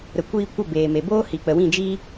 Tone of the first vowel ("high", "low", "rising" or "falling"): low